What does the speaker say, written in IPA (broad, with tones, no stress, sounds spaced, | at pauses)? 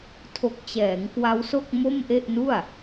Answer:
tʰ o˨˩ k̚ t͡ɕ ɛː˩˦ ŋ k w a˦˥ w s o˥˩ k̚ m o˥˩ m ʔ e˥˩ ʔ n u˥˩ a̯